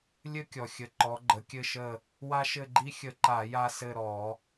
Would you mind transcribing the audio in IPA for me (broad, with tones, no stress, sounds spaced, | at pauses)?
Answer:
lʲ ɘ˦ kʲ ɔ˩ xʲ ə˩˧ ǃ ɔ˩˧ ɡ͡ǃ ə˩˧ kʲ ɘ˦˨ ʃ ə˦˨ | w a˦ ʃ ɘ˦˨ ɡ͡ǃ i˦ xʲ ə˧˩˧ ǃ a˧˩˧ j a˦˨ s ɘ˦˨ ɾ ɔ˧˩˧